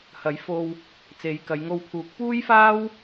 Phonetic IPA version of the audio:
h ɐ˨˥ j f o˧ w | t͡s e˨˧ j k ɐ˨˧ j ŋ o˧ w pʰ uː˨˥ k̚ p uː˥ j f aː˥ w

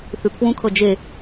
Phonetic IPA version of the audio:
θ ʉ pʰ w ũ kʰ ɤ d͡ʒ e

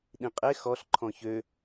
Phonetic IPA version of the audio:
ɗ ĩ qʼ e x ɔ ɬ ǃʰ ɔ̃ ç ø

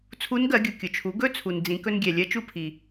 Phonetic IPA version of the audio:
t͡sʰ u˧˥ n ɡ ɜ˩˧ ɡʲ u˩ kʲ ʊ˩ t͡ʃʰ u˩˧ ɡ ɵ˥ t͡sʰ u˩ n d͡z ĩ˩˧ k ɵ˧ n ɡʲ ɛ˩ lʲ ɜ˧˥ t͡ʃ u˧ pʰ i˩

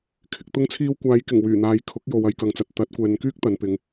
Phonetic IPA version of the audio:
kʰ ɪ˨ k̚ t̪ ʊ˧ ŋ t͡sʰ iː˧ w kʷ aː˨˧ j k ɪ˨˩ ŋ w yː˨˩ n̪ aː˨˧ j kʰ ʊ˨˥ k̚ j o˨ w ɐ˨ j k ɐ˨ ŋ t͡s ɐ˨ t̚ t̪ ɐ˨˥ t̚ kʷ ɛː˨ n k yː˥ k̚ t̪ ɐ˨˧ n p ɪ˨˧ ŋ

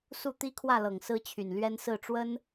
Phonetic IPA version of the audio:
s u˥˩ t̪ i˥ kʰ w ä˥˩ l ɤ˨˩ ŋ s ɹ̩˥ t͡ɕʰ y˨˩ n l ɥ ɛ˥ n s ɹ̩˥˩ ʈ͡ʂ w ə˥ n

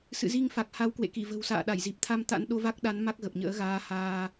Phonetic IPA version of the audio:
s ɨ̰˧˨ z i˧ ŋ f a˨˩ k̚ h a˨˦ w k w ḛ˧˨ k i˧˩ v ə̤˨˩ w s a̰ː˧˨ ɗ a˧˩ j z i˨˩ p̚ t̪ʰ a˧ m t̪ a̰˧˥ n ɗ o˧ v a˦˥ k̚ ɗ a˨˦ n m a˦˥ k̚ ɣ ə˨˩ p̚ ɲ ə̰ː˧˥ ɣ aː˧ h aː˧

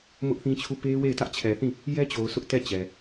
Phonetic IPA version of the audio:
m ʊ˦ ʔ θ ĩ˦ t͡ɕʰ u˦˨ p e˦ w e˦˨ ɪ̯ t ä˦ ʔ t͡ɕʰ ɛ˨ θ ĩ˦˨ | j ɛ˦ t͡ɕ o˨ ʊ̯ s ʊ˦ ʔ t ɛ˦˨ t͡ɕ ɛ˨

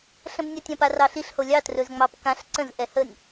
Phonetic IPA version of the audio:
ɬ ə̃ b nʲ a tʲ ã p a r ɑ ɬ i ɬ h o lʲ ɑ t r ɵ z ŋ͡m ɑ p k ã ɬ ǀ ə̃ z ʔ ɛ h ə nʲ

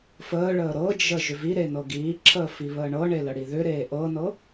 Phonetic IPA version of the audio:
f əː ɭ əː ɾ ɤ d͡ʒ ə ʒ ʏ v i ɾ e n ɤ ɡ iː ǁʰ əː f i β əː ɳ ɤ ɳ e l ə ɽ i ð ʏ ɾ eː ʔ ɤ n ɤ

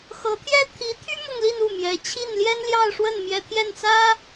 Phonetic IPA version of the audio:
x ɤ˧˥ t̪ʰ j ɛ˥ t̪ʰ i˧˥ t̪ʰ y˥ m ʊ˥˧ ŋ l i˥˧ n u˥˩ m j ɛ˧˥ t͡ɕʰ i˥˩ n l j ɛ˥ n l j ɑ˥˧ ʊ̯ ʂ w ə˥˩ n m j ɛ˥ t̪ʰ j ɛ˥˩ n t͡s ä˥

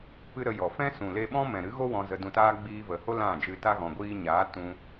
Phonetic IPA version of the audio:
p ɨ˦ ɾ ə˧ j ɔ˨ f ɛ̃˦ s ũ˨ l e˧ ɓ ɔ̃˦ m ɛ̃˨ ɾ ɨ˨˦ ɣ o˦ w ɔ̃˧ z ə˧ d ũ˧ t aː˦ ɡ͡b iː˧ v ə˨ h o˦ l ã˦˨ d͡ʒ ɨ˧ t a˦ ɣ ɔ̃˨ ɡʷ iː˧ ɲ aː˨˦ t ũ˧

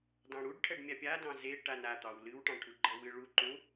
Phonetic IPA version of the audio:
d ɑ̃ ɽ u ɖ ʈʰ ɛ ɖ mʲ a pʲ a d ɑ̃ z e ʈ a n a t̪ ɑ w l ɨ w ʈ ɑ̃ ʈʰ u ɡ͡ǃ ʌ w ɨ ɭ u ǃ ũ

